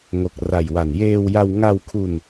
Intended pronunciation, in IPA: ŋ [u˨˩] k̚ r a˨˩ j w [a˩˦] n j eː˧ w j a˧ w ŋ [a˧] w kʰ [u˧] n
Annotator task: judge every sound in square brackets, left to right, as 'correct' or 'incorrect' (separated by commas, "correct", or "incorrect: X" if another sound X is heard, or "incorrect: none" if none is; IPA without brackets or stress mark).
incorrect: o˨˩, incorrect: a˨˩, correct, correct